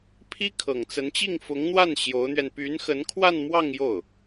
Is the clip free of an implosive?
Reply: yes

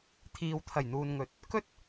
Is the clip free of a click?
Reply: yes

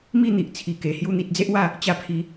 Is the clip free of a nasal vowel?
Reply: yes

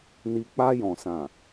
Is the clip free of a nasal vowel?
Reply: no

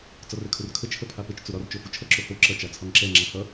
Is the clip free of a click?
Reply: no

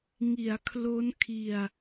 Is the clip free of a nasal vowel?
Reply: yes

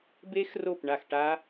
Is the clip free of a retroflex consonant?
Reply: no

